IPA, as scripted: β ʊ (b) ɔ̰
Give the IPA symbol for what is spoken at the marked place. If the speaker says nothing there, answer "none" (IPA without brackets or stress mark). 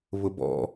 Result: b